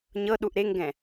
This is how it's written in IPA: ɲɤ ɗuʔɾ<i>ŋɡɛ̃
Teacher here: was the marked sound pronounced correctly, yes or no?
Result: no